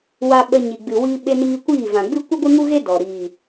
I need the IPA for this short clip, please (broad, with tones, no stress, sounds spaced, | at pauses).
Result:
w a˧ ɓ ə˧ ɲ i˨ ɡ͡b ɨ˨ w i˧ ɓ e˧ n iː˧ kʷ iː˦˨ v ã˨ ɡ͡b ɨ˦ kʷ ɨ˦ ɡʷ ɨ˦ ŋ u˦ ɣ e˦ d ɔ˨ ɾ iː˨